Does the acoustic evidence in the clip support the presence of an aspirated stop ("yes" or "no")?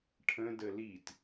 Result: yes